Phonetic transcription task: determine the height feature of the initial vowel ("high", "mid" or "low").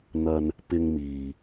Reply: low